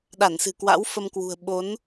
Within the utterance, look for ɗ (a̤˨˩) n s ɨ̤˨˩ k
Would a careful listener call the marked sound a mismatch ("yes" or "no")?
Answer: yes